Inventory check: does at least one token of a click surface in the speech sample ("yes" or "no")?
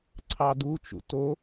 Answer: yes